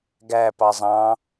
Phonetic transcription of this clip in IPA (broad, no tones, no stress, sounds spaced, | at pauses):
ɡ æ p ɑ zˤ ɑ̃